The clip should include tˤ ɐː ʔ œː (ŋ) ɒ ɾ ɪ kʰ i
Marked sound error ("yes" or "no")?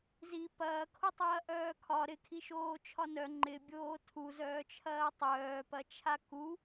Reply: yes